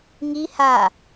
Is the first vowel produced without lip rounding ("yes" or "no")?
yes